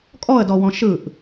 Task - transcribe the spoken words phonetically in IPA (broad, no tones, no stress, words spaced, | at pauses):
kʼɔə̯dɔwɔ̃ ʃɯʔ